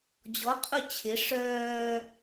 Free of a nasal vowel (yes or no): yes